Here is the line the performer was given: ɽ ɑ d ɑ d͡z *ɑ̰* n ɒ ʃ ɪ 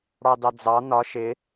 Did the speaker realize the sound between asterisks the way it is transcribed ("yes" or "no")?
no